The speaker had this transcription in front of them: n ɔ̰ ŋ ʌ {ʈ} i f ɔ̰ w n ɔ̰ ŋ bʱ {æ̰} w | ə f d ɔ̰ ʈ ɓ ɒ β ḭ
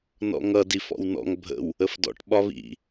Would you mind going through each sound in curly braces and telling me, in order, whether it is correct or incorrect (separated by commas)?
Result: incorrect, incorrect